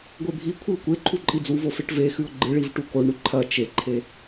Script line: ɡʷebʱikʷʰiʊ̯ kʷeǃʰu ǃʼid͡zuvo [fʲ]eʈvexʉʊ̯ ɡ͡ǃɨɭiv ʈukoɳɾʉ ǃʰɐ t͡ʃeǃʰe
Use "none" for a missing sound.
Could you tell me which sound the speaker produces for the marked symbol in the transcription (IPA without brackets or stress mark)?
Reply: f